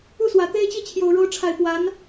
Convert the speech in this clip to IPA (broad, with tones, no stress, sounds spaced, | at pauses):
u˥˩ s w ä˨˩ t̪ e˥ ɪ̯ t͡ɕ i˥˩ t͡ɕʰ j o˨˩ ʊ̯ ɻ o˧˥ ʊ̯ ʈ͡ʂʰ a˨˩ ɪ̯ p w a˧˥ n